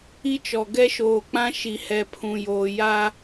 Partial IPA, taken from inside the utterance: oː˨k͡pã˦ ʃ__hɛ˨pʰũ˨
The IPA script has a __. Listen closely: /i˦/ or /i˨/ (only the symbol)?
i˨